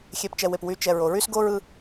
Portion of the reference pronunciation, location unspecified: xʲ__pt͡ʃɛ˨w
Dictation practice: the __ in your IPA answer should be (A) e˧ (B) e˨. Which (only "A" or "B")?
B